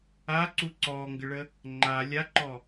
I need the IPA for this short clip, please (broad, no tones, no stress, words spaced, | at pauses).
aǀu ǀɔːŋɡəɭə | ŋ͡ǃa lʲaǃɔ